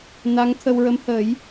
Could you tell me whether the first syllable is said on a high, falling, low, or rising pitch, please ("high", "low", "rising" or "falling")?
rising